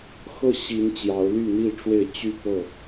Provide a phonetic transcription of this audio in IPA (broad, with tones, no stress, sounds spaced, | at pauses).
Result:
x ɤ˥˨ ɕ i˨˦ n t͡ɕ j ɑ˨˦ ʊ̯ l y˥˨ n̪ i˥˨ ʈ͡ʂ w e˥˨ ɪ̯ t͡ɕ y˥˨ p ɤ˥˨